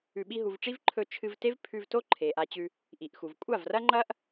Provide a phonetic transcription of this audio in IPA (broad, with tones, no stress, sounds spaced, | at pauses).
ʉ˨ ɓ i˧ ɦ u˨ v ʈ͡ʂ i˦ v ǃʰ ɵ˧ t͡ʃʰ ɨ˧ v t e˦ v pʰ ʉ˧ v t o˦ ǃʰ e˨ ʔ a˧ t͡ɕ ʉ˧ | ʔ i˨ ʔ x u˨ v kʷʼ a˦˨ v r ɐ˦ ŋ͡ǃ ɐ˦ ʔ